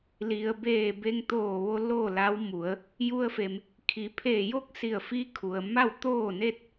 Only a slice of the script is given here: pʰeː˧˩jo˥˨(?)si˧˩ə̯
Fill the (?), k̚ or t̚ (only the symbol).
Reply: k̚